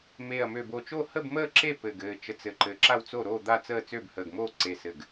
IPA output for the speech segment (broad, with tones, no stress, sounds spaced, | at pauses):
m eː˧˩ ɐ̯ m ø˧˩ b o˧˩ t͡ʃ o˥˨ h ə˥˨ b m əː˥˨ ǁ e˥˨ p ɘ˧˩ ɡ ɘː˧˩ t͡ʃ ə˧˩ t͡s ɘ˧˩ ǃ ɘː˧˩ ǁ a˥˨ w t͡s o˥˨ ɾ oː˥˨ d̪ a˥˨ t͡s əː˥˨ t͡s ø˥˨ b h əː˧˩ ɡ m oː˥˨ ǀ e˧˩ s ɘ˧˩ ɡ